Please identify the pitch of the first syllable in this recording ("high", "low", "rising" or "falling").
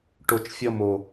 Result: low